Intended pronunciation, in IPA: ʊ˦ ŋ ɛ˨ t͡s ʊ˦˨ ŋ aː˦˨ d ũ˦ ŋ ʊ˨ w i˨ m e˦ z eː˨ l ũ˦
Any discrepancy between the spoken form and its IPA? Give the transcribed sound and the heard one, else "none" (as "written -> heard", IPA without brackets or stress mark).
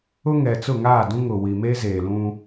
none